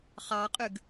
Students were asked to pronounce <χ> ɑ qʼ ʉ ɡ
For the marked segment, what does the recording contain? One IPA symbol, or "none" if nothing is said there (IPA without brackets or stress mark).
χ